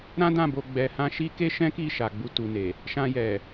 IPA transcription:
ɾã˦dã˦˨bo˧ ɡ͡bɛ˧hã˦ ʃi˦ke˦ʃɛ̃˦ki˦˨ ʃa˨ɡ͡bu˧tu˨ne˨ | ʃã˧jɛ˨

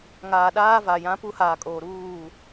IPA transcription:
ŋaː˨ ɗaː˦va˨jã˦ pu˦haː˨kʼoː˨ ɾuː˦˨

